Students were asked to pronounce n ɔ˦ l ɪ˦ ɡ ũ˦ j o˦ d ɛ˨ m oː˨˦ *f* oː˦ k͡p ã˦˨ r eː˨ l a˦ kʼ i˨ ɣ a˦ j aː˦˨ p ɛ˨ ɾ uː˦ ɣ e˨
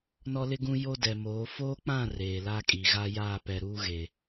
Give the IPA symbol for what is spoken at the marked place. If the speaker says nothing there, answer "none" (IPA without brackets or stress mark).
f